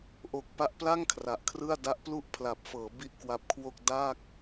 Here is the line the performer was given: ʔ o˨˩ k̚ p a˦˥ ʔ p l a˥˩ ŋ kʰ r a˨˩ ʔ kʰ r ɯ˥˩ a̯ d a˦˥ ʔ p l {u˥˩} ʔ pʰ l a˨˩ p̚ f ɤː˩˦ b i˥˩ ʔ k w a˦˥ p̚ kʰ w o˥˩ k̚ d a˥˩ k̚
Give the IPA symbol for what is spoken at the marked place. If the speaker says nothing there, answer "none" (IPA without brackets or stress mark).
u˥˩